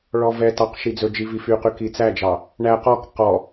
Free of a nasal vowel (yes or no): yes